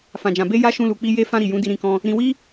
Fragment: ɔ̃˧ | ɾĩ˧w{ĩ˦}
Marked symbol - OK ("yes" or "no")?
no